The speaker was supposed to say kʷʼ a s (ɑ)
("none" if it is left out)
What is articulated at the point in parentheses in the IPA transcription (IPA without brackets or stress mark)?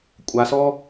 ɔ